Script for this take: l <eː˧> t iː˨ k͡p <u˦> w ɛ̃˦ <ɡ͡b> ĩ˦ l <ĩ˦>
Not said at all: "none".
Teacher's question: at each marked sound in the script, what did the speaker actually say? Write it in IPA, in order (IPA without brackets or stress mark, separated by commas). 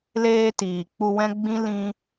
eː˧, u˧, ɡ͡b, ĩ˦